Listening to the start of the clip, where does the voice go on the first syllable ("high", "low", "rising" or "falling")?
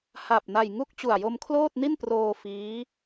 low